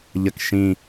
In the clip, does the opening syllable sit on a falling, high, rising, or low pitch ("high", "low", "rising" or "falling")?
low